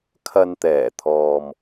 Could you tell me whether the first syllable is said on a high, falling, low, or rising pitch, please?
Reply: low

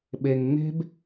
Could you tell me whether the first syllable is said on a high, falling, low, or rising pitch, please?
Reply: low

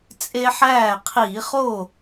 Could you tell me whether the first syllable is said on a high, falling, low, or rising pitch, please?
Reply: high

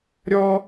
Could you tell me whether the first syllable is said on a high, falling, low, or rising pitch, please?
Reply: high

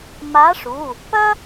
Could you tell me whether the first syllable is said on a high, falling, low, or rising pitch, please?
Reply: rising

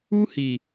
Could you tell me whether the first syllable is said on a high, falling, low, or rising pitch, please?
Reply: high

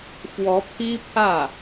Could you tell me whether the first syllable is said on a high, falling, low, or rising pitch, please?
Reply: rising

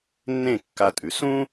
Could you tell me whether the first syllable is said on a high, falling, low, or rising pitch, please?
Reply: falling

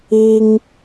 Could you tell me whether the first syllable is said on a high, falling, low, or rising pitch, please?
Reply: high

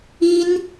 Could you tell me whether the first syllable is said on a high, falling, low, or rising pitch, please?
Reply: high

